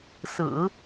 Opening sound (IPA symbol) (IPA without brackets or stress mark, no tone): s